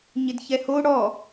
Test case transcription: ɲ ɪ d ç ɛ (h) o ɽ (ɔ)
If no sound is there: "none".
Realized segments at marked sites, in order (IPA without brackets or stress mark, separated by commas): h, ɔ